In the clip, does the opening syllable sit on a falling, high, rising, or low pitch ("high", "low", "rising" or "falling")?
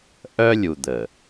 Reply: high